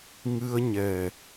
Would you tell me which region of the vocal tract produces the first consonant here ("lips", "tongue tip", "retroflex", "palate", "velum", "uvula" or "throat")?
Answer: velum